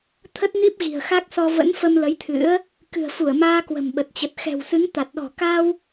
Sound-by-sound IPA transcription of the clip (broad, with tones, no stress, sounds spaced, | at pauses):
t̪ʰ ə˦˥ t̚ n i˦˥ p̚ ɣ i̤˨˩ ə̯ x a˦˥ k̚ s ɔ˧ v ə̰˧˥ n f ə˧ m l ə˨˦ j t̪ʰ ɨ̰˧˥ ə̯ | k ɨ̤˨˩ ə̯ f u˧˩ ə̯ m aː˧ k w ə̤˨˩ m ɓ ə˨˩ t̚ t͡ɕ ə˨˩ t̚ x ɛ̤˨˩ w s ɨ˨˦ ŋ t̪ a˨˩ t̚ ɗ ɔ̤˨˩ k a˧ w